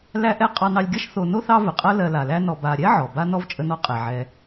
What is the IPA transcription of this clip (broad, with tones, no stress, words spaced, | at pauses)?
læ˦ʔɛ˦ qʼɑ˨nɑ˨lʲɡʲɐ˦ʃ θo˨no˥θɑ˦ və˩qʼɐ˥ lɜ˨la˩læ˦nɔ˨ ba˨ ɾʲɛ˥ʕɔ˩ ba˥ nɔ˥vt͡ʃʼə˦nɔ˦ qʼɛ˩ʕɛ˨